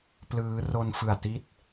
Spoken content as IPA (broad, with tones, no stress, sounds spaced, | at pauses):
p l ɯː˦˥ r o˧ n f ɯ˨˩ a̯ t i˦˥ t̚